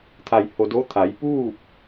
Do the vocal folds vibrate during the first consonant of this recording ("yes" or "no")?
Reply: no